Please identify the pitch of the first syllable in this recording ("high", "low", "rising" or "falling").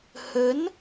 rising